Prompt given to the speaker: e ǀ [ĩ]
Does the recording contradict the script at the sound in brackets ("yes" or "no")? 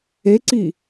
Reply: yes